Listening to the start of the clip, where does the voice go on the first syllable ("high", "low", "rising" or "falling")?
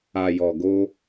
low